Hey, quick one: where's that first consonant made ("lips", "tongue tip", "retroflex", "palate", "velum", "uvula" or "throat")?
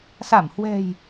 tongue tip